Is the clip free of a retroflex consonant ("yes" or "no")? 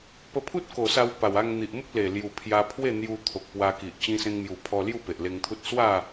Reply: yes